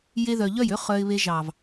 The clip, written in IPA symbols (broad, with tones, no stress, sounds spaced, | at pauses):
j e˧ ð œ˨ ʎ œ˦˨ j ø˦ χ œ˧ ɪ̯ β e˧ ʒ ɑ˨ v